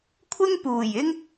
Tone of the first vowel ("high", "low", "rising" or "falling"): high